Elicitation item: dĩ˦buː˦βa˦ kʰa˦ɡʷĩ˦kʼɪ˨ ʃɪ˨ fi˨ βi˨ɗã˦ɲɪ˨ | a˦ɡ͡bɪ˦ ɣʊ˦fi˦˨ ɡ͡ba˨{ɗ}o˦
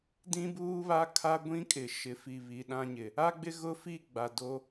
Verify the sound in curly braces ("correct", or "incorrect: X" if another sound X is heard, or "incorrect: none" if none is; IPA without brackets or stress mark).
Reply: incorrect: d